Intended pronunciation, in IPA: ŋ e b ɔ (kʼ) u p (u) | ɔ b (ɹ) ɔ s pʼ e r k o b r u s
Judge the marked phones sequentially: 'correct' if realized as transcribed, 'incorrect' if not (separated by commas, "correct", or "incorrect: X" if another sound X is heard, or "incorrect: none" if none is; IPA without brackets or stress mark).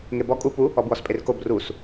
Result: correct, correct, incorrect: w